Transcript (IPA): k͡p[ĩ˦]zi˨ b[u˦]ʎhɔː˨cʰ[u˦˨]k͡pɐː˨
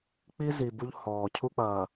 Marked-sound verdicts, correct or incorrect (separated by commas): incorrect, correct, incorrect